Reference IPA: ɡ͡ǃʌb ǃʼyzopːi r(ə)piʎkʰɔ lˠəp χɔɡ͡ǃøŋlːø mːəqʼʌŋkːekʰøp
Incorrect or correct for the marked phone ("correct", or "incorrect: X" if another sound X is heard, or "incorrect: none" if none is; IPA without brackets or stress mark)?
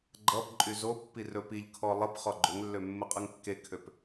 incorrect: ɵ